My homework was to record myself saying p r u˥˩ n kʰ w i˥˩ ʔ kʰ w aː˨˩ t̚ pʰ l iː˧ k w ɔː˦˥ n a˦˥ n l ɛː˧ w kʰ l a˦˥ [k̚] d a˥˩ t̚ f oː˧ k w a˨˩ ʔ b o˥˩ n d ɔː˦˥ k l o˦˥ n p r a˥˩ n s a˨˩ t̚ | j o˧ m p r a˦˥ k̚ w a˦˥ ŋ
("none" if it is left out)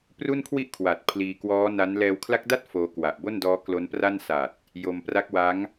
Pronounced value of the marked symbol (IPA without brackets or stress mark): k̚